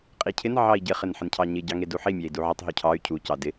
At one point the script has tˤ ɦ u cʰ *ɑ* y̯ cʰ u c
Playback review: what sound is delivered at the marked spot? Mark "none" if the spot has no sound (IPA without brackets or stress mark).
ɑ